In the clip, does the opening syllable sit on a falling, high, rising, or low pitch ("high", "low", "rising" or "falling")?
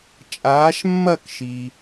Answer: rising